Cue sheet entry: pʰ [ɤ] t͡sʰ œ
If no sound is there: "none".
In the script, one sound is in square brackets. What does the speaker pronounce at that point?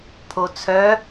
o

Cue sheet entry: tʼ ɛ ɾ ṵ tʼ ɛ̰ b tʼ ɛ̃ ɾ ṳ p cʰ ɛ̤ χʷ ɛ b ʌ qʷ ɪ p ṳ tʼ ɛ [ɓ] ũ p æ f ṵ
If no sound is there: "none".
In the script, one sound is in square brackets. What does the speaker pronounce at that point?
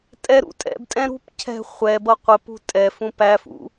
f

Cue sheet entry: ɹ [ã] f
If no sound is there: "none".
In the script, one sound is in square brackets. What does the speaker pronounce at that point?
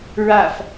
a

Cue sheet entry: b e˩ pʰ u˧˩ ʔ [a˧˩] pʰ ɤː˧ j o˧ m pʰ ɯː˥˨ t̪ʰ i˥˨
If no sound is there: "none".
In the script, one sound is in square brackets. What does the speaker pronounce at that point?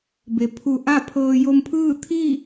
a˥˨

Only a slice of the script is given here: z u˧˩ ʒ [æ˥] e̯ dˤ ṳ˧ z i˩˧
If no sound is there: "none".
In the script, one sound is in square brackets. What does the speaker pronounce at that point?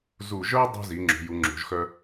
œ˥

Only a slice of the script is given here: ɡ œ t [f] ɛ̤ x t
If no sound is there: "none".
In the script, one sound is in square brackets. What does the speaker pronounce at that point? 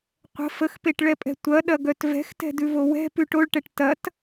v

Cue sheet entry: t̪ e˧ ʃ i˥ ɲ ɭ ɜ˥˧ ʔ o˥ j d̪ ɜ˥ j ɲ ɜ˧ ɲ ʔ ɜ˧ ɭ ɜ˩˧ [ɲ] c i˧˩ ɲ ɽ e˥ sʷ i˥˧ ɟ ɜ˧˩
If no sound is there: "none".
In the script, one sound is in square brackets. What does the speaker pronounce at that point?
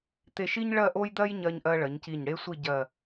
ɲ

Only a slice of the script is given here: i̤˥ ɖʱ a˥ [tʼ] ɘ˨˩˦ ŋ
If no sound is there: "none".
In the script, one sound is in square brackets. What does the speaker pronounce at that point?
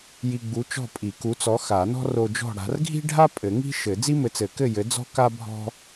pʼ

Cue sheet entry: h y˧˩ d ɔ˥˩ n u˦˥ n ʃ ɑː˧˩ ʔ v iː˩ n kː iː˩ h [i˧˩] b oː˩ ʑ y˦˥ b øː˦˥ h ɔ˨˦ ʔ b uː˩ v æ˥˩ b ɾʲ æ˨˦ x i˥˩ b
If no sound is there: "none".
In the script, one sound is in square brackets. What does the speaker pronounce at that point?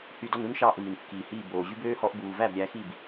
iː˧˩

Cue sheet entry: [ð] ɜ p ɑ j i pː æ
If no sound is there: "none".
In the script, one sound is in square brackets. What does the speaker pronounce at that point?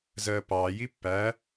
z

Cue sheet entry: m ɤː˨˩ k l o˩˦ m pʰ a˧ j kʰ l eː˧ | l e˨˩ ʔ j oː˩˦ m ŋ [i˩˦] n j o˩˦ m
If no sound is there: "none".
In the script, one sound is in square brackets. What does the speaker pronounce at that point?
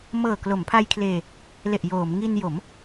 i˧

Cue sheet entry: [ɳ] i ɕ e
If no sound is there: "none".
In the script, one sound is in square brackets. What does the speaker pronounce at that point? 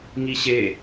ŋ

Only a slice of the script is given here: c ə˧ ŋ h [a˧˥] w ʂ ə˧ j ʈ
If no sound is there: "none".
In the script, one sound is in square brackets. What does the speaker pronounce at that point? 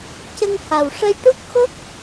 a˨˩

